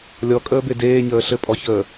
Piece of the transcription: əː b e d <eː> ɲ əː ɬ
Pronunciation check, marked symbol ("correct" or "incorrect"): correct